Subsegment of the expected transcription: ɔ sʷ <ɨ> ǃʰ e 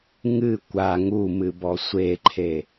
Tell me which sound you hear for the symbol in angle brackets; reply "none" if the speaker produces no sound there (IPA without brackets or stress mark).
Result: e